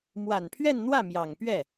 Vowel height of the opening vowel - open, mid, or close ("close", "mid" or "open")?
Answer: open